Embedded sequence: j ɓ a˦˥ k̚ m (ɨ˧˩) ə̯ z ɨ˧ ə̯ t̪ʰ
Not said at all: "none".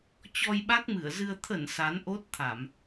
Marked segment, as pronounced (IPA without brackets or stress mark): ɨ˧˩